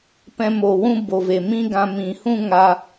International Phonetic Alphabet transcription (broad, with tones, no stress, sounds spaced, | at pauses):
p ɛ̃˧ m o˨ w ũ˦ b o˨ v e˨ m ĩ˦ ɡ ã˧ m ĩ˨ h ũ˦ ŋ a˧